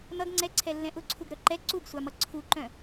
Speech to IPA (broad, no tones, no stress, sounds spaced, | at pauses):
n̪ ʌ ɡ ŋ͡ǀ ɛ ǀʰ ɛ lː ɛ̃ ʔ ʊ ǀʰ u ɡ ɾ œ ǃ ɛ ǀ u ɡ sʷ a m ʌ ǀʰ u ǃ œ̃